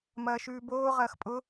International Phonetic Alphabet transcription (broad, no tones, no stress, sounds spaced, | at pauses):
m ɐː ʃ ʉː b oː ʁ ɐː x pʼ ʊ